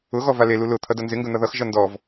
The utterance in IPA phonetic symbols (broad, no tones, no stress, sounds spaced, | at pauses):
ʊ ɣ ɔ v a l e l u l ʊ t̪ʰ ʌ d ʌ n z ɪ ŋ ɡ ɵ n̪ ʌ ð ʌ x ʒ ʌ n d ɔ v